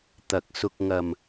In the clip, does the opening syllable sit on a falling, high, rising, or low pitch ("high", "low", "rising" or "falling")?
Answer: low